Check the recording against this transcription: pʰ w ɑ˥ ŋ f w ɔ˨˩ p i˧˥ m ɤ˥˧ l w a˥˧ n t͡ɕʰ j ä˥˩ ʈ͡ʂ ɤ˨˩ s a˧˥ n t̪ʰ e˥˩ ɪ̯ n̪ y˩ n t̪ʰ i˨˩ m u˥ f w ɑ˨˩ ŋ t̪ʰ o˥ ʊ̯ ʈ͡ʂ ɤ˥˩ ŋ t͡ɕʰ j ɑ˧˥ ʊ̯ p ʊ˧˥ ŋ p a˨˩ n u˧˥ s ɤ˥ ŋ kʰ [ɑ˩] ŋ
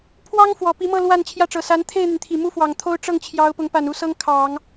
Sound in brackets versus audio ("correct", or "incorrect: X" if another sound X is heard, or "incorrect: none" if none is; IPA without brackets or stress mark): incorrect: ɑ˨˩˦